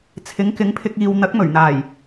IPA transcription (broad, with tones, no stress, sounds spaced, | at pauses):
t͡sʰ ɪ˨˥ ŋ k ɪ˨˥ ŋ pʰ ɪ˧ k̚ iː˨ w n̪ ɐ˨˥ k̚ m ɵ˨˩ ɥ n̪ aː˨˩ j